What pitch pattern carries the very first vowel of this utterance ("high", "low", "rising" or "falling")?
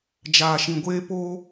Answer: low